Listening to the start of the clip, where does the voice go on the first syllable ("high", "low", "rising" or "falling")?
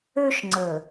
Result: high